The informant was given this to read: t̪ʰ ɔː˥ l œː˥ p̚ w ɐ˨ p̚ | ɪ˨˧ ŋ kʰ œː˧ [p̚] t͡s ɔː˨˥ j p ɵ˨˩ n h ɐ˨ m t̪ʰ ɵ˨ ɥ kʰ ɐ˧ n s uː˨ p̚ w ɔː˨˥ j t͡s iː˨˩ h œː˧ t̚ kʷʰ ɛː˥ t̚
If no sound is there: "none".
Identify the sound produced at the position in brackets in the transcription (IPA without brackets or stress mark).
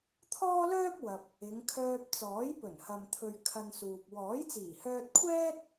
p̚